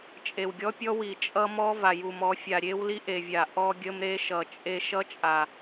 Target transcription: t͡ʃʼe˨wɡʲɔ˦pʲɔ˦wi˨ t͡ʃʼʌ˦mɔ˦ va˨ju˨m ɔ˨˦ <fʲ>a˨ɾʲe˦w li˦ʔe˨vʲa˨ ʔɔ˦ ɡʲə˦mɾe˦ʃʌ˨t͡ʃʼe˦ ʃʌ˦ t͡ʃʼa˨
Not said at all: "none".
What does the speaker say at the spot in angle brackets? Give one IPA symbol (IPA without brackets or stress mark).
fʲ